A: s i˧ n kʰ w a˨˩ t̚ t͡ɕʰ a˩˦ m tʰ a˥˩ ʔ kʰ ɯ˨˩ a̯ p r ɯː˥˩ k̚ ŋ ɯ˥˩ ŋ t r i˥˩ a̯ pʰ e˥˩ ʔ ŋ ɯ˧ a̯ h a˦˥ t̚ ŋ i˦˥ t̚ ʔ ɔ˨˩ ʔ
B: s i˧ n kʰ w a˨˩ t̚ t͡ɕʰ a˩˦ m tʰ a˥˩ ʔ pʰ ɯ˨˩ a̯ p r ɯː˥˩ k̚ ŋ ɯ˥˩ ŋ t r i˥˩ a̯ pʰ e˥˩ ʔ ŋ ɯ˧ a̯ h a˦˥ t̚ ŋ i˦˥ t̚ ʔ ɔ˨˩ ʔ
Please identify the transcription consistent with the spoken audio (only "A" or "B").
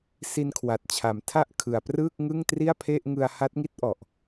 A